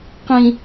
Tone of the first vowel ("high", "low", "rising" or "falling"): low